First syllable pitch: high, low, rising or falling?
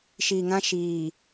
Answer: low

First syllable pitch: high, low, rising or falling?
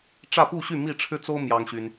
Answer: falling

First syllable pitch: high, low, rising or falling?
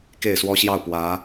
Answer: falling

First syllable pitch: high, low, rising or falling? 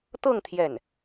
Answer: falling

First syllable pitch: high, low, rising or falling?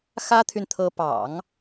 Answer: high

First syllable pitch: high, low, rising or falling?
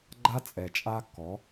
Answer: high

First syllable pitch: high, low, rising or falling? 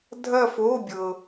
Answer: falling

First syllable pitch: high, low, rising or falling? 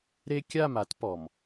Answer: high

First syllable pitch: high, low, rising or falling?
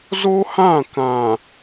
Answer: high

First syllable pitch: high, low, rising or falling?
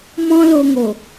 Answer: high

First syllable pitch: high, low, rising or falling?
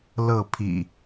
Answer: falling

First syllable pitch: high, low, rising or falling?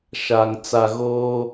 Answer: low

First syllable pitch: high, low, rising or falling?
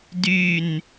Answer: falling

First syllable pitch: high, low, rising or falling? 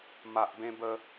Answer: low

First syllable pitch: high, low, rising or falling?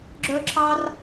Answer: high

